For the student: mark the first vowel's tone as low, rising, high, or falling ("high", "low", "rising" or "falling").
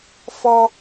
high